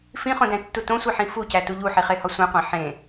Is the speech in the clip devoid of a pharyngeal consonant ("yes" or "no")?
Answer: no